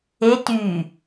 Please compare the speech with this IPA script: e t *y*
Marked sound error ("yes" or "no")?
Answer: no